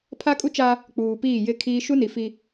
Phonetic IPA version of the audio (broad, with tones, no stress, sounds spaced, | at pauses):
pʰ a˦ kʼ u˦ t͡ʃ a˦ | k͡p uː˨ p iː˦˨ j ɪ˦ kʰ iː˦ ʃ u˦ n i˨ f i˦